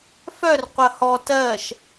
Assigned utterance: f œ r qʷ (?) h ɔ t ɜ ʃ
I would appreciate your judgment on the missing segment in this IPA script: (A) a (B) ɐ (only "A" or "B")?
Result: B